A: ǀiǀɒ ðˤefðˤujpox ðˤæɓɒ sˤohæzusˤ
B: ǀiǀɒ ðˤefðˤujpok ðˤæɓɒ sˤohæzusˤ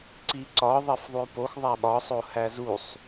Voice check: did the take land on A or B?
A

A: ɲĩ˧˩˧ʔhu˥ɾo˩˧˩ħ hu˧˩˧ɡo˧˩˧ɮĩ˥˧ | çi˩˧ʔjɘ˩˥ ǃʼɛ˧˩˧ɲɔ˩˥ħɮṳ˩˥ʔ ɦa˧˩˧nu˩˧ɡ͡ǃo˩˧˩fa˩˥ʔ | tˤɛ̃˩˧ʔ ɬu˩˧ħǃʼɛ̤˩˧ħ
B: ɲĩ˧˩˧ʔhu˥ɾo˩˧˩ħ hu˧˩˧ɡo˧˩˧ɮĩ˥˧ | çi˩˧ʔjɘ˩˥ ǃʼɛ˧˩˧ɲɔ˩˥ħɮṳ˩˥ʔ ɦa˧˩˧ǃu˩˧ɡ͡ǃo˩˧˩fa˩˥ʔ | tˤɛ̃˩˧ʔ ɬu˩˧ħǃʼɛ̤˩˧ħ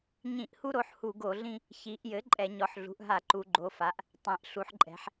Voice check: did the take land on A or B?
B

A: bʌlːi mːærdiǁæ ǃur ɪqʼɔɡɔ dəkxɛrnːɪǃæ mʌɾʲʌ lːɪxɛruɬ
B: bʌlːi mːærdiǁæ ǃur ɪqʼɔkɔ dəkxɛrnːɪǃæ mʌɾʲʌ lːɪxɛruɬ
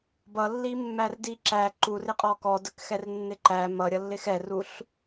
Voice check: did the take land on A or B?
B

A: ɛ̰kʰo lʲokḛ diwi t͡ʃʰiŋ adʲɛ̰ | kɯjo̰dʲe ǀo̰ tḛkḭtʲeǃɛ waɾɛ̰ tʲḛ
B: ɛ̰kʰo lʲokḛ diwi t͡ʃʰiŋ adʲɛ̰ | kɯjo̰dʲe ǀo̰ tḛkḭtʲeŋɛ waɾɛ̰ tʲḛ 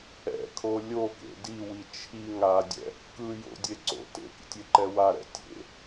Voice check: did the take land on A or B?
A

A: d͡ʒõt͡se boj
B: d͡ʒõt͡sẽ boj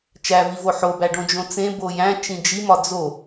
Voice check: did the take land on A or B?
B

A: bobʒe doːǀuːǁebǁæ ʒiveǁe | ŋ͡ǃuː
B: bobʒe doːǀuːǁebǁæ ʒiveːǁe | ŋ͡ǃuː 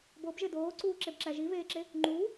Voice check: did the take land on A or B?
B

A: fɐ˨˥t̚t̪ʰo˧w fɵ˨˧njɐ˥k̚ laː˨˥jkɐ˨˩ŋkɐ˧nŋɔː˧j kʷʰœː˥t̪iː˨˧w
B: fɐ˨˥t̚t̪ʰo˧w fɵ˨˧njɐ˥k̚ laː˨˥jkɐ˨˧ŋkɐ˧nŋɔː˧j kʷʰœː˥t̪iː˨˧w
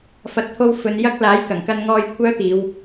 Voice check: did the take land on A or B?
A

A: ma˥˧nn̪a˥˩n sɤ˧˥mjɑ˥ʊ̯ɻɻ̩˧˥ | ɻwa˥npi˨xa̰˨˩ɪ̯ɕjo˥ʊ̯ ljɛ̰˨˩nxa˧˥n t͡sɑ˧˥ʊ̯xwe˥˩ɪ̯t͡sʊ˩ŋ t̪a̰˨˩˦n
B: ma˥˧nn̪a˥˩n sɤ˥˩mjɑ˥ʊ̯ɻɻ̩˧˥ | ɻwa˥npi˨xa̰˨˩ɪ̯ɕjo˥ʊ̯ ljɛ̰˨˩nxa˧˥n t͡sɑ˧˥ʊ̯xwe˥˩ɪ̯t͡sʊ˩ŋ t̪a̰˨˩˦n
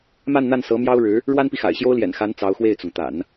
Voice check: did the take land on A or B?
A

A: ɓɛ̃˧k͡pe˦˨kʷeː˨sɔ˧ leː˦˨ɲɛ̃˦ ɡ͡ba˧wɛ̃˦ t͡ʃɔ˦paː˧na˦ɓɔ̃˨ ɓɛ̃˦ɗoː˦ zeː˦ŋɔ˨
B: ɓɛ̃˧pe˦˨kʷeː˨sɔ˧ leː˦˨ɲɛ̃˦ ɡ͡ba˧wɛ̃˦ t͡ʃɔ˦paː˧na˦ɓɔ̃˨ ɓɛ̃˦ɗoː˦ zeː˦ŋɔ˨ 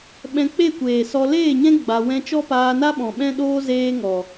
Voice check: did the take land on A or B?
A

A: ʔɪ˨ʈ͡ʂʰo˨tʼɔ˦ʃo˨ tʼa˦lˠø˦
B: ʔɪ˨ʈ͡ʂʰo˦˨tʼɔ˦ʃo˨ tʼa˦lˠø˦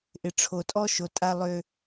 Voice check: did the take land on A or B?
A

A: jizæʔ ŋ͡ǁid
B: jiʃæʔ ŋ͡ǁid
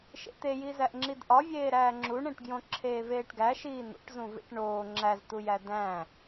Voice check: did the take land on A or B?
A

